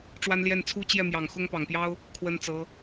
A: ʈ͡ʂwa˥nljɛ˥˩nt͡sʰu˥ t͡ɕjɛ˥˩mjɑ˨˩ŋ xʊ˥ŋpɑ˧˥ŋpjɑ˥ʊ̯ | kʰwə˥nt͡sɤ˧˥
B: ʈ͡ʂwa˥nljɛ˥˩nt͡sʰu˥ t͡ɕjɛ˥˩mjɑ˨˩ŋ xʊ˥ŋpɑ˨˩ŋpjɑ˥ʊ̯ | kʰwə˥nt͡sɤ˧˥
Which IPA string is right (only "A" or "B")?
B